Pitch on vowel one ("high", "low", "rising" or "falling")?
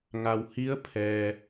low